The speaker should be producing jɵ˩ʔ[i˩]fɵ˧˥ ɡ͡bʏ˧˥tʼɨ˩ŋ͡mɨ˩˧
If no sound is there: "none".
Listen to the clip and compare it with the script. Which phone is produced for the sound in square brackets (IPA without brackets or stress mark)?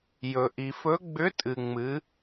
i˩